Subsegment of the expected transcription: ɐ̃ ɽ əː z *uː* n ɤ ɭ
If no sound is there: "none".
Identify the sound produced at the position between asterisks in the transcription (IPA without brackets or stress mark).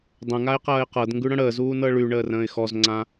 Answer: uː